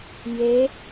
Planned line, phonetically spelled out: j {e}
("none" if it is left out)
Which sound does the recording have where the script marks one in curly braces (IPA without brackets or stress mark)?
e